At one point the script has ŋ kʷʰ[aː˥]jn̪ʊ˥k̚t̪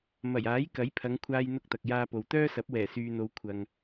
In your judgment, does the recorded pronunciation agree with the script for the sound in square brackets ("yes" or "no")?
yes